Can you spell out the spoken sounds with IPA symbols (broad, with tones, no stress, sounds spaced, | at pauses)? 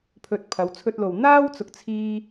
pʰ ɵ˨ t̚ pʰ ɐ˨˧ w t͡sʰ ɵ˧ t̚ l o˨ w n̪ aː˥ w t͡s ʊ˨ k̚ t͡sʰ iː˧